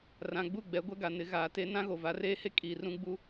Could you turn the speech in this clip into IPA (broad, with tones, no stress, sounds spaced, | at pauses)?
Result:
r ã˨ ɡ͡b u˦˨ ɡ͡b ɛ˨˦ ɡʷ ɛ˦ ɡ a˨ n ɪ˨˦ ɣ aː˨ t e˦ n ã˦ ɣ o˨ v a˨˦ r eː˦ h e˦ kʼ iː˨ r ũ˦ ɡ͡b u˦